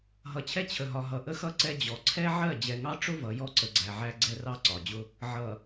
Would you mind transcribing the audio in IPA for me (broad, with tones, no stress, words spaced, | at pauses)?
ɦʌ˨t͡ɕʰɛ˦ t͡ɕʰə˨ɦɒ˨ ɦʌ˨ʔə˦xʌ˦ ǀɛ˦d͡ʑɔ˨ ǀʰɛ˦ʕɜ˦˨ d͡ʑɛ˨ŋɑ˦ʈ͡ʂʊ˦ vʌ˨˦jɔ˦ ǀə˨ɡ͡ǀæ˨ʕæ˦ ɡ͡ǀɛ˦rɑ˦ǀɒ˨d͡ʑʊ˦ | ʕʌ˨